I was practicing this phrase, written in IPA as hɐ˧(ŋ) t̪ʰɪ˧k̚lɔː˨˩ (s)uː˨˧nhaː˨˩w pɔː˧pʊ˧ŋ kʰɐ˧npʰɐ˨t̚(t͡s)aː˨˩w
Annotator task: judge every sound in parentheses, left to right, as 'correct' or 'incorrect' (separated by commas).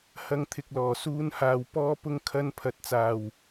correct, correct, correct